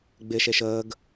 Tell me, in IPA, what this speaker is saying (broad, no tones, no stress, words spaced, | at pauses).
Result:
ɡ͡bɪ ʃeʃəːɡ